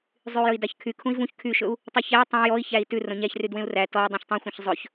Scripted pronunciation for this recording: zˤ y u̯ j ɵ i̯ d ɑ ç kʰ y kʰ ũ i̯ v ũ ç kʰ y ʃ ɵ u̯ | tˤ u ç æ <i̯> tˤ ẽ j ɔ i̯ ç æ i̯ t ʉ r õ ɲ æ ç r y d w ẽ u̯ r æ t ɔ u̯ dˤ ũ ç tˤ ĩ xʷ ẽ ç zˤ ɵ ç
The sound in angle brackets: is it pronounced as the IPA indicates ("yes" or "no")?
yes